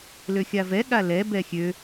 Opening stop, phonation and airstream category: implosive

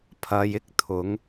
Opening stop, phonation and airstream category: aspirated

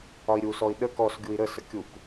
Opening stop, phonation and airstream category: implosive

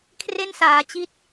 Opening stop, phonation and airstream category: aspirated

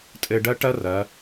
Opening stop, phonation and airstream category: ejective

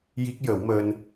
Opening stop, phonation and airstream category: plain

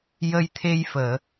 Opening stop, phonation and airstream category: aspirated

